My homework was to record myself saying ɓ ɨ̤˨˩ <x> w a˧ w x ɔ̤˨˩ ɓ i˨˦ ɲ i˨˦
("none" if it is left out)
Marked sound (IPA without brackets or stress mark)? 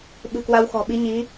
k